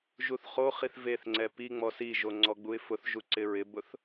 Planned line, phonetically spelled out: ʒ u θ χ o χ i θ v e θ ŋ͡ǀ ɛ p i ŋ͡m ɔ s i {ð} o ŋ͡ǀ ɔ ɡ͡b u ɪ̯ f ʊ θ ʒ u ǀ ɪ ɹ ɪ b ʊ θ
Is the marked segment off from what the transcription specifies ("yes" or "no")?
yes